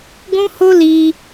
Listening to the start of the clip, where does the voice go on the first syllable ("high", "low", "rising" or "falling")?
high